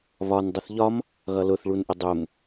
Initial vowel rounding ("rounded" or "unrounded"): rounded